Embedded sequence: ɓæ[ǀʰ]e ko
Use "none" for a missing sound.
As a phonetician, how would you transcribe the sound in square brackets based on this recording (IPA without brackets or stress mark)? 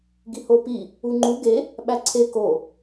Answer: ǀʰ